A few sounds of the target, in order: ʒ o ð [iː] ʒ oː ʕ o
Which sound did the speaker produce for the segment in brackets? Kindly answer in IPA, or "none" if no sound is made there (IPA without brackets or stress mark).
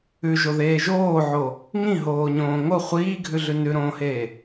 eː